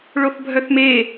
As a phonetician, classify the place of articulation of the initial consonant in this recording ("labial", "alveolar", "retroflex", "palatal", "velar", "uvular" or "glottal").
retroflex